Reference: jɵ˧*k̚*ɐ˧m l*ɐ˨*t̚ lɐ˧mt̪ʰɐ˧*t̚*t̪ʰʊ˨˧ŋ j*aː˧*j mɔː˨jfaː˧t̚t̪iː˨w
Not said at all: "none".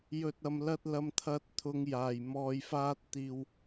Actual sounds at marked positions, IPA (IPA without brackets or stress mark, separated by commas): t̚, ɐ˥, t̚, aː˨˩